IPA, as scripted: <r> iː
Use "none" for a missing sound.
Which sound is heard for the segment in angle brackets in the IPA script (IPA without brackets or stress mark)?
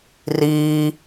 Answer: r